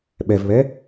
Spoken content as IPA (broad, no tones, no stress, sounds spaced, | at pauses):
ɓ ɛ v β ɛ